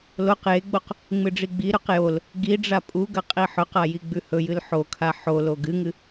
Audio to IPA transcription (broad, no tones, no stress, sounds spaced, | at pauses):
l o q j e ɡ͡b o q | ŋ͡m ɨ ɖ͡ʐ i ɡ͡b i ɾ ʉ q j o l | ɡ i ɖ͡ʐ a pʼ u ɡ ɐ qʼ i ħ ɵ q a j i ɡ͡b ʉ h ɵ j ɨ l ħ o kʰ a ħ o l o ɡ ɨ ŋ ɨ